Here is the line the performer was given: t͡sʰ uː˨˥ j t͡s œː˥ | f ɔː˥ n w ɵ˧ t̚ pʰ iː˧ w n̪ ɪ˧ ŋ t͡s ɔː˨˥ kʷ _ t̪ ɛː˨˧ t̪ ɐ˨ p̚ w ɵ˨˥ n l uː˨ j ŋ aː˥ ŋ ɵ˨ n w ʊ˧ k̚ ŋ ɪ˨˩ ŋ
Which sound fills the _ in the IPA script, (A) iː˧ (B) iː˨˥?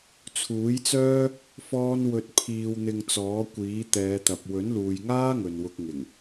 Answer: B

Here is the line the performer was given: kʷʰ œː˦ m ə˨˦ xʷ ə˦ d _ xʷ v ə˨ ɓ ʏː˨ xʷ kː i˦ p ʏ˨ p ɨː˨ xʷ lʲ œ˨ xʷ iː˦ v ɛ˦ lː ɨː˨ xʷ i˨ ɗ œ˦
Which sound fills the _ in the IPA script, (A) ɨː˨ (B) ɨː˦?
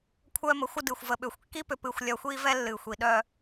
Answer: A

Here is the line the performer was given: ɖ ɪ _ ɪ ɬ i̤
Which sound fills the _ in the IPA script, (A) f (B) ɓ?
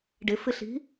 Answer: A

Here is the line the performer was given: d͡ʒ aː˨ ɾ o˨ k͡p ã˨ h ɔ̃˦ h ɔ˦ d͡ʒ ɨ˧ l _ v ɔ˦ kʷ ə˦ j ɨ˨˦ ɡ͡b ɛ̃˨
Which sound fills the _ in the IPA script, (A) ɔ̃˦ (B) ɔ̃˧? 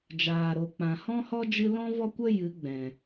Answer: A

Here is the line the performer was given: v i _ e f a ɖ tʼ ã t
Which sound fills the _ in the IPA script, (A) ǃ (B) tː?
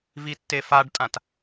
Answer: B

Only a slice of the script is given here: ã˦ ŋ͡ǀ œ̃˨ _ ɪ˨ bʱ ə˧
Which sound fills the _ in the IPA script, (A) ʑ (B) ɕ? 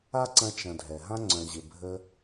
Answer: A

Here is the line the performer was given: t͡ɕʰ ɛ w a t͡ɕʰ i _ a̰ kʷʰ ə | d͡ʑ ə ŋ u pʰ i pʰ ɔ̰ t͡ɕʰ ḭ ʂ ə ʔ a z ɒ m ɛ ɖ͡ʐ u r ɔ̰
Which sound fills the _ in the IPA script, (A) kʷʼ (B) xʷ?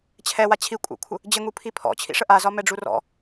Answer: A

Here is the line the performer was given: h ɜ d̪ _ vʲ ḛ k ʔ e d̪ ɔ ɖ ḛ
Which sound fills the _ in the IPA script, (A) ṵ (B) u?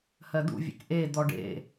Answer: A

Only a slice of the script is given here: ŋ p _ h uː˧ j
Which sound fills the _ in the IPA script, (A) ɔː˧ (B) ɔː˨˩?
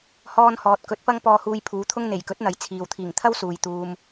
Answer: A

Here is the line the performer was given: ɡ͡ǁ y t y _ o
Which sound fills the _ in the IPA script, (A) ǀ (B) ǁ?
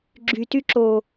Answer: B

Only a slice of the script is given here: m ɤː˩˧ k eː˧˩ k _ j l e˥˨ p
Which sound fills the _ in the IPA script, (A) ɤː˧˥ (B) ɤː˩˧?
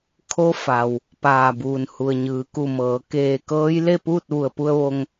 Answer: A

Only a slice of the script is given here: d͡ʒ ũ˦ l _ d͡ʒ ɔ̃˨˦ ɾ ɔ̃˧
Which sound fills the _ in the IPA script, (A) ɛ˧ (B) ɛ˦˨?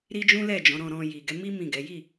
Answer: B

